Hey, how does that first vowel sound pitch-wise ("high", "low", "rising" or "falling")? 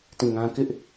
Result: falling